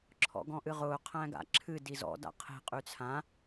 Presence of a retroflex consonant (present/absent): absent